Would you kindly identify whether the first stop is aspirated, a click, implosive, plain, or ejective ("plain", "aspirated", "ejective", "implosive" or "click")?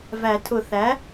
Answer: aspirated